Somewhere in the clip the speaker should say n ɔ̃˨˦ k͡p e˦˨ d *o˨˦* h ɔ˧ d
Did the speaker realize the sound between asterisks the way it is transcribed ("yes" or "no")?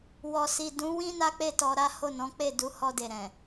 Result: no